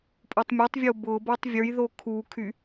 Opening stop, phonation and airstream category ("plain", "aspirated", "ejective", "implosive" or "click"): ejective